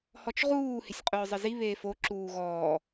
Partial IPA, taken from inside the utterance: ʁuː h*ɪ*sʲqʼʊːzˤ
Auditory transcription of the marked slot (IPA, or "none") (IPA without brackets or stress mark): ɪ